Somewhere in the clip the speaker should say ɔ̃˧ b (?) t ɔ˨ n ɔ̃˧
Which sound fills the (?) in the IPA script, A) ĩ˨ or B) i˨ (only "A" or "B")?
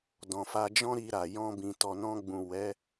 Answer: A